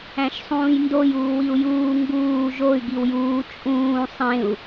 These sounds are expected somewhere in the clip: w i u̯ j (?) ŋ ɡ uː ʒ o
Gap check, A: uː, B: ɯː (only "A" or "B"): A